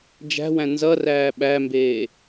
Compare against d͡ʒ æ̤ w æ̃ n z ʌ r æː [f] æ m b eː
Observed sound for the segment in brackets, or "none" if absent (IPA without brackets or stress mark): ɓ